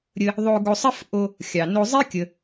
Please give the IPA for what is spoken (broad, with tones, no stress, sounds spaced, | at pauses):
ɾʲ ə˧ | ðˤ o˧ ɡ o˧ sˤ ə˥ f ʔ o˧ | xʲ ɑ˩ n o˧ zˤ i˥ kʲ ə˩